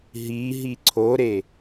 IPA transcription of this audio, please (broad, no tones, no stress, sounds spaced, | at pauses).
ɦ i ɦ i ǀʰ o ɾ e